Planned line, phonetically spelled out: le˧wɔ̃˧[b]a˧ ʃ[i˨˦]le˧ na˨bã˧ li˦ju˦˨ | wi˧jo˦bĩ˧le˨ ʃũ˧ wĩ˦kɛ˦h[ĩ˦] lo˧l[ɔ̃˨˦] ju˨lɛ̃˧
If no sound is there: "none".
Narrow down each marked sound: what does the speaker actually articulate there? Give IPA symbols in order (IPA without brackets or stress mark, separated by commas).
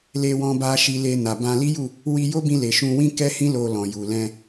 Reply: b, i˧, ĩ˦, ɔ̃˨